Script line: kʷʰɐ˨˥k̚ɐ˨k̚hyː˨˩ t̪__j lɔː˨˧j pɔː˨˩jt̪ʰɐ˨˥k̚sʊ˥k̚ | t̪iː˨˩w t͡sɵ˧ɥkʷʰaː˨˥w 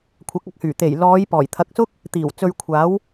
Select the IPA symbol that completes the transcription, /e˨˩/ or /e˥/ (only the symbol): e˨˩